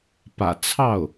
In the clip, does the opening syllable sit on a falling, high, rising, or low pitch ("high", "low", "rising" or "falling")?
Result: low